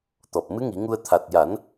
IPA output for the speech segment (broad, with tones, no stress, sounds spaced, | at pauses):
t̪ ɔ˨˩ p̚ m ɨ˧˥ ŋ i˨˩˦ ŋ u˧ ə̯ t̪ʰ a˨˩ t̚ j a˨˩˦ n